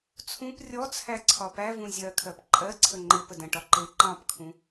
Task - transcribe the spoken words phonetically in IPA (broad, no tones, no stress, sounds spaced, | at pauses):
t͡sʰ ũ p rʲ ɔ t͡sʰ æ ǀʰ ɒ p æ v ũ zʲ ɜ kʰ ɜ p ǃʼ ɜ ǀʰ ə ŋ͡ǃ ɪ p ə d ə̃ ʈ ɒ ǃ ɪ ǃ ɑ̃ p kʰ ũ